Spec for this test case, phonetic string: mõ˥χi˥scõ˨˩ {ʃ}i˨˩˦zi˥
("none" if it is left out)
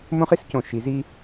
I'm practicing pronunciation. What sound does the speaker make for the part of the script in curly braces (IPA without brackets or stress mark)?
ʃ